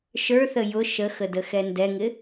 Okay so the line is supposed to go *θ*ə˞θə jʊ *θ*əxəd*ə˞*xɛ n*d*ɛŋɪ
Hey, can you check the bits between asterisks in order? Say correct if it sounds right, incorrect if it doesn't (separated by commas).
incorrect, incorrect, incorrect, correct